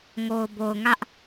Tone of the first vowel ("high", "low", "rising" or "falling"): low